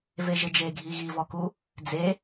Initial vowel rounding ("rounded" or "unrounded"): unrounded